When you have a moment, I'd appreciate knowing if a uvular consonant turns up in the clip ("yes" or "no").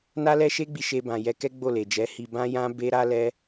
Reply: no